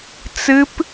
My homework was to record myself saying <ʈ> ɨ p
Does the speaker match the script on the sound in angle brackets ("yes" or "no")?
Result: no